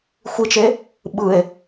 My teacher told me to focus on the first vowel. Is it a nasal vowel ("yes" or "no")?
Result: no